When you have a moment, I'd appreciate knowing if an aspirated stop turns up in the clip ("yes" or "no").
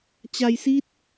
no